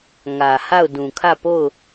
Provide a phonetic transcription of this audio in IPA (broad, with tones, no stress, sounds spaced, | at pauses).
ŋ ä˨ h a˦˨ ʊ̯ d ũ˨ kʰ ä˦˨ p o˦˨ ʊ̯